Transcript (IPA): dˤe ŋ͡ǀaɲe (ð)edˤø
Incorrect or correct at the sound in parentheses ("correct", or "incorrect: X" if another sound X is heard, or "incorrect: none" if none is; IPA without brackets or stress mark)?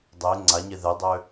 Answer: correct